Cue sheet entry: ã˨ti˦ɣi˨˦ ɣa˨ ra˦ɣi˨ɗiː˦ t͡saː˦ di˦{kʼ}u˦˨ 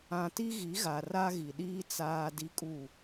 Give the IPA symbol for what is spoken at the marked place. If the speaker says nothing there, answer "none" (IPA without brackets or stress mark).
kʼ